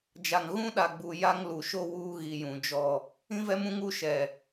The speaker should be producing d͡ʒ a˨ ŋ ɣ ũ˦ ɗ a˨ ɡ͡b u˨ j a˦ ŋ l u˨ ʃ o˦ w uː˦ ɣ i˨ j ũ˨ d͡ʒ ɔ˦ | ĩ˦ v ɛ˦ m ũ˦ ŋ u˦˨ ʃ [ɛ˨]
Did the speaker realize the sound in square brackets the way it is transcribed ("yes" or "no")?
yes